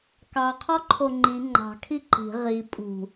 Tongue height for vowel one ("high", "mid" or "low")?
low